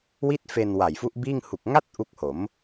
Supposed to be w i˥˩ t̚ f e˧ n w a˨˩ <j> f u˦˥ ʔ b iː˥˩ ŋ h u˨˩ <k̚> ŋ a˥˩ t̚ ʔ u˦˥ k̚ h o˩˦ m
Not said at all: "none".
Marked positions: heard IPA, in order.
j, k̚

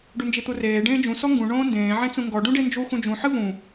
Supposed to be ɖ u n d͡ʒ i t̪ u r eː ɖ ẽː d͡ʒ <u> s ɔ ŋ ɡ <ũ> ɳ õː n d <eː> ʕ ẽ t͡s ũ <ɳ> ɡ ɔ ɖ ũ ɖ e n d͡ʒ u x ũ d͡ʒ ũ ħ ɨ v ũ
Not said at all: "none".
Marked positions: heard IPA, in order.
ũ, ũ, ẽː, ŋ

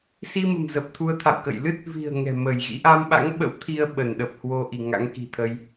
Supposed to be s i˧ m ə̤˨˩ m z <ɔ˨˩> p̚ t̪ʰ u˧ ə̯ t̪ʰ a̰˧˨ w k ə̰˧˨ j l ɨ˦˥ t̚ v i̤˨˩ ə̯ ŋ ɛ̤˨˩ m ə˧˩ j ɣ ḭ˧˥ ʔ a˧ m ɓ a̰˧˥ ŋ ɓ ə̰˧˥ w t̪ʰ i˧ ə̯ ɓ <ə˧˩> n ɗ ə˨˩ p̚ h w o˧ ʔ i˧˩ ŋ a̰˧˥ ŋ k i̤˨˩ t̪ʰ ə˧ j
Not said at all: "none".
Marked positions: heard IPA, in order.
ə˨˩, ə˧˩

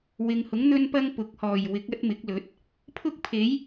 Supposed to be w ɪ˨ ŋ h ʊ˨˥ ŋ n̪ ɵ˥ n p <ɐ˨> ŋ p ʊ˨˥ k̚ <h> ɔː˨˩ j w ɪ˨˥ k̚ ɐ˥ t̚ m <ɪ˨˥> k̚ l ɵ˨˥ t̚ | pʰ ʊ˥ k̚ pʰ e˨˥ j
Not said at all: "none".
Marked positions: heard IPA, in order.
ɐ˥, h, ɪ˨˥

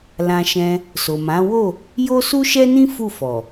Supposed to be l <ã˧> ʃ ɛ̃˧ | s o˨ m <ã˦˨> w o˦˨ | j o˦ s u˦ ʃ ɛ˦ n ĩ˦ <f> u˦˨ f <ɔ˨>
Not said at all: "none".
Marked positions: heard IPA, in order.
ã˧, ã˨˦, f, ɔ˨

